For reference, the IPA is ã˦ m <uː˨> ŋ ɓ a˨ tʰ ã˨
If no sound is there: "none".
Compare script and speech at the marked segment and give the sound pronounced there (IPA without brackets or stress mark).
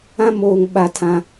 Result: oː˨